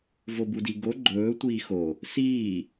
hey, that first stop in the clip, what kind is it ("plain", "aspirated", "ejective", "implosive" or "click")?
plain